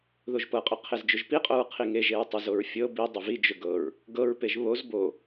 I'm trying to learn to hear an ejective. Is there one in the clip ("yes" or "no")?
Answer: yes